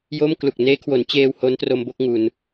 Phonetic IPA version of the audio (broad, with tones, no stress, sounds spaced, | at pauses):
j o˥˩ m k l u˨˩ k̚ n eː˦˥ kʰ w o˩˦ n t͡ɕ eː˧ w h o˦˥ n t r o˧ m b o˥˩ k̚ ŋ u˧ n